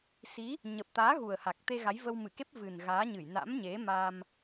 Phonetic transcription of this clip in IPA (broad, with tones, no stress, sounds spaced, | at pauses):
s i˨˦ | ɲ ə˨˩ p̚ t̪ aː˨˦ ɣ u˨˩ ə̯ h a˨˩ k̚ t̪ e˧ ɣ a˨˦ j v ə˧ w m ɨ˧˩ k e˦˥ p̚ v ɨ˨˩ n ɣ aː˨˦ ɲ ɨ˧˩ j n a̰˧˥ m ɲ e˨˦ m a˧ m